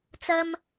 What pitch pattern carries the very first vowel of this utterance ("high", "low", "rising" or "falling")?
high